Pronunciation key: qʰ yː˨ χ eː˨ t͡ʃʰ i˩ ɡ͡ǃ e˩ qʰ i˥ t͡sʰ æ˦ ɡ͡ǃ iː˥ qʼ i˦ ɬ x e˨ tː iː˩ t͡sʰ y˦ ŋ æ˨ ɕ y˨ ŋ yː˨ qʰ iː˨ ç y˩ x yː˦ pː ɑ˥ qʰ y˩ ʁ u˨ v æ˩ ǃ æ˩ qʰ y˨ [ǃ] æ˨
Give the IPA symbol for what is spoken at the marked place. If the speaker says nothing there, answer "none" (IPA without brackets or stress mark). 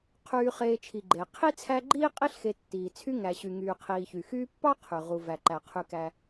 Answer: k